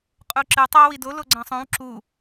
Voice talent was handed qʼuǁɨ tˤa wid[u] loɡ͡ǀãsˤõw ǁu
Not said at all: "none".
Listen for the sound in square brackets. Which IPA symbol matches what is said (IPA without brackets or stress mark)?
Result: o